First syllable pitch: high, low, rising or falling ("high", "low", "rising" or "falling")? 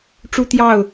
high